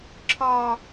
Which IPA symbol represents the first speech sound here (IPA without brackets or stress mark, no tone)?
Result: ǁʰ